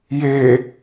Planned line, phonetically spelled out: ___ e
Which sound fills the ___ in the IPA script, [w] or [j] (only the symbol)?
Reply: j